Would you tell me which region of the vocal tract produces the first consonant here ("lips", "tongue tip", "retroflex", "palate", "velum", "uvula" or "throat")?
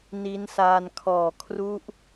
tongue tip